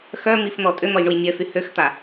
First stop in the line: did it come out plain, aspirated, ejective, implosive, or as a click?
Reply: ejective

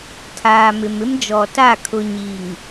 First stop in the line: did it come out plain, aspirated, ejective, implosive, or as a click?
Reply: aspirated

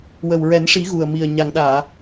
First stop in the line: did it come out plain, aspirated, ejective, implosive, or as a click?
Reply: implosive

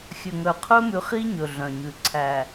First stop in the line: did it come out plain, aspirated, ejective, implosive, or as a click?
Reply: aspirated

